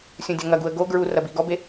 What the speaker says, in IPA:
sʲũdʲɐŋɐɡuə̯ ɡo ɡɹu rɐbiɡɔbe

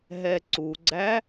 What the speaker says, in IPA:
ɦɛǀuɡ͡ǀæ

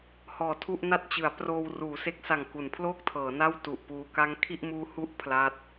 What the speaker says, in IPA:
hɔː˨˩tʰu˥˩ʔna˥˩t̚t͡ɕɯ˩˦a̯ proː˧w ruː˩˦se˦˥k̚sa˨˩ŋ ku˩˦npʰloː˥˩k̚tʰɤː˩˦ na˥˩w tu˨˩ʔpuː˧ ka˦˥ŋkʰi˥˩ʔmuː˦˥ hu˥˩ʔ pʰla˦˥t̚

